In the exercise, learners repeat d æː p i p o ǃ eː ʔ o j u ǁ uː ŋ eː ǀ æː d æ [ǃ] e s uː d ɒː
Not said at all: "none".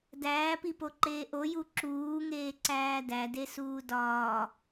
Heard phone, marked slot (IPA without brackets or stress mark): d